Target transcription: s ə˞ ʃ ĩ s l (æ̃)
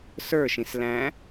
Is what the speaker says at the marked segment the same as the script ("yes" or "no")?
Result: yes